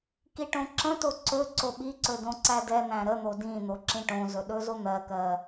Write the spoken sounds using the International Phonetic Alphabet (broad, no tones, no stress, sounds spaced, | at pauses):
k i ʈ õ ǁ ə̃ t o ǀ ɵ ǀ o ɓ i ǀ ɵ d õ ǀ æ d ɛ n̪ æ̃ ɾ ə n̪ o d ĩ n̪ o ǁ ĩ ʈ õ z ɵ ɗ ɵ z o n̪ ɜ k ɜ